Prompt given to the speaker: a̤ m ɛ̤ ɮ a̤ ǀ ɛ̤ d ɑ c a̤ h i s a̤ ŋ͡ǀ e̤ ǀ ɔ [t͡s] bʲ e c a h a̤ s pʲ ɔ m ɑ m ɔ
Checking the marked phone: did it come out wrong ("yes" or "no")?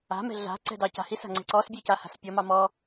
yes